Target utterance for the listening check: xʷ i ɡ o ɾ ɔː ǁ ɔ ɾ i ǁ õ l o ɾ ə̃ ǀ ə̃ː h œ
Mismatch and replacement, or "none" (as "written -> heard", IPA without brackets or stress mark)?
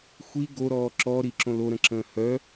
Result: ǀ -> ǁ